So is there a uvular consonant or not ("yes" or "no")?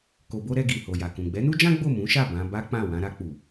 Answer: no